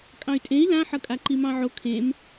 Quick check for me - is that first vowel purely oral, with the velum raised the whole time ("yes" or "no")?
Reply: no